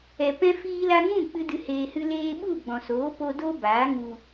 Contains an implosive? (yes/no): yes